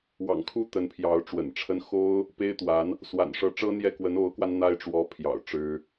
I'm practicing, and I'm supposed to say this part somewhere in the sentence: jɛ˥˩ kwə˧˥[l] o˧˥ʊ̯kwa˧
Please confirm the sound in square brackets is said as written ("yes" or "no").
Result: no